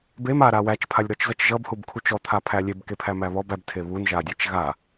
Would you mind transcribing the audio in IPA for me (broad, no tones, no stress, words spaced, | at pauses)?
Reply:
bem aɾa wæt͡ʃpʰalʲɾɔt͡ʃzʌt͡ʃ ʒʌbhubkʰut͡ʃ ɔt̪ʰapʰæ lʲebkepʰæmæ βɔb æbtʰe βunʒadʲæt͡ʃ ɣa